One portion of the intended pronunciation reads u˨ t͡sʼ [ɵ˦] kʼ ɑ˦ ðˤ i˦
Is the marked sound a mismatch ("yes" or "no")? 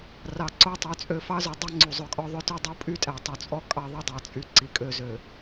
yes